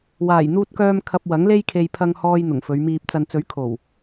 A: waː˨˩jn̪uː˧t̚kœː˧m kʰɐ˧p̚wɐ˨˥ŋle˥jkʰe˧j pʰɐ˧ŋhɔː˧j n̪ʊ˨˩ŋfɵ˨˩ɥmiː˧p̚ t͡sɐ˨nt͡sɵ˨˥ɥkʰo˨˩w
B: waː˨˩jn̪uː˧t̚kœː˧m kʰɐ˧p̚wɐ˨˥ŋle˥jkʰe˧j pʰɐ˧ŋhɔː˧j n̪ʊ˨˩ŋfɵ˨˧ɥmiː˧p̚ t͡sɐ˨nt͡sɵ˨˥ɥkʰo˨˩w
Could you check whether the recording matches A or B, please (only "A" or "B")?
B